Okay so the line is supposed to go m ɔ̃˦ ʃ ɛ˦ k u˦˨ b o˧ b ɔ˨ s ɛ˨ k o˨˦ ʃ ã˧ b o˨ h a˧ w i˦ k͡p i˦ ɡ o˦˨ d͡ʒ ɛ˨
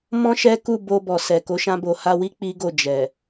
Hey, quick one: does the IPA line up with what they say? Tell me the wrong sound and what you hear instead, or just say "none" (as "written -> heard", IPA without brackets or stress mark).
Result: none